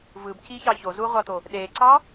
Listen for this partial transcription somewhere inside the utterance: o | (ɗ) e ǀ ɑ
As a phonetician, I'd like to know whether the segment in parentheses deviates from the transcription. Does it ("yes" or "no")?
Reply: no